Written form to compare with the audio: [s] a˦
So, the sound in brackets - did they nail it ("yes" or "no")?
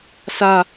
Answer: yes